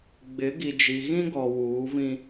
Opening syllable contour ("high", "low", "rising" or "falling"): rising